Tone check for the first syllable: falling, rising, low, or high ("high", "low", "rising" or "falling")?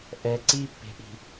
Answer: low